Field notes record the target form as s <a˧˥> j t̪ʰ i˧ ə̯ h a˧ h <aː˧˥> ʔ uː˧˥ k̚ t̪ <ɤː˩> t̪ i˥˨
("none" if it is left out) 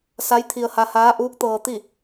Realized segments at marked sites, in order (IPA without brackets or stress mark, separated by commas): a˧˥, aː˧˥, ɤː˧